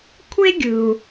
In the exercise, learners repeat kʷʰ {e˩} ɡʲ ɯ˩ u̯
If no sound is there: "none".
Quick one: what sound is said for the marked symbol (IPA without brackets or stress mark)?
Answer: e˥